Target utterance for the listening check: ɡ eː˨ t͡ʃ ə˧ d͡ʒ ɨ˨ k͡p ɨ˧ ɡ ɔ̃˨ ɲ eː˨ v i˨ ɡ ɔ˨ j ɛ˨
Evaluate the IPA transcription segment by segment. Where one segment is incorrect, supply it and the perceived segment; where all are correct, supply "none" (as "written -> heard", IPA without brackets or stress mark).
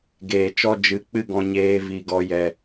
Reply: ə˧ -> ɔ˧